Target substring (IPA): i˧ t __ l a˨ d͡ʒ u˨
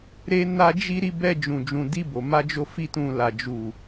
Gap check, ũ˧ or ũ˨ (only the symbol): ũ˧